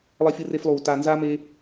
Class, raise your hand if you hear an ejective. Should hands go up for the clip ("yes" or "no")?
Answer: no